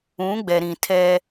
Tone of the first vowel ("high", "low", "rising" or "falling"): rising